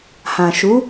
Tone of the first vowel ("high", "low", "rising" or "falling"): low